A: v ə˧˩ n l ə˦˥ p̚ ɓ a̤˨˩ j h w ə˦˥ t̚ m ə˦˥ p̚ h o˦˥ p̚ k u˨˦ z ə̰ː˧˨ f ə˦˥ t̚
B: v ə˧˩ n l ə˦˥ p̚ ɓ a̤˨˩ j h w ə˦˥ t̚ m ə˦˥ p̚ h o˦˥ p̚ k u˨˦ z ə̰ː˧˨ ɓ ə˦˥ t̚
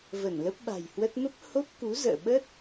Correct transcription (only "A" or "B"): B